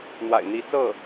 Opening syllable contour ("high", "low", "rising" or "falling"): low